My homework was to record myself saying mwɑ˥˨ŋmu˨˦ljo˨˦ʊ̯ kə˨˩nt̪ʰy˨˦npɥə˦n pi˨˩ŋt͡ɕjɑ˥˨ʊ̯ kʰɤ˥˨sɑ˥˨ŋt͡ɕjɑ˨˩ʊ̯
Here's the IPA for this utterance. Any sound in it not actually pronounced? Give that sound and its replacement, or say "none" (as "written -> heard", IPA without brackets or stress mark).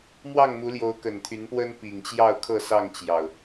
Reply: ɥ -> w